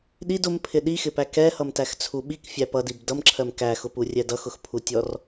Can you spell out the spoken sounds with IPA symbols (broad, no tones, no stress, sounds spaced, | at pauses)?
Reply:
ɗ i d ʊ m pʰ ɪ ɗ i x ɪ p æ k ɛ h ʌ m t æ x t͡sʰ u ɓ i k fʲ æ p ʌ d i b d ʌ m ǁʰ ɜ m k æ x ʊ p u rʲ ɛ d ʌ x ʊ x pʰ u tʲ ɔ r